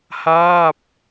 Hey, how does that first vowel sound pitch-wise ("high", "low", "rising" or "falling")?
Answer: falling